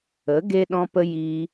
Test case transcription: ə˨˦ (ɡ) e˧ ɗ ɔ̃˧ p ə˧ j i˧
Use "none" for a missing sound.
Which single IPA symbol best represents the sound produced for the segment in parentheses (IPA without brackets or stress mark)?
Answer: ɡ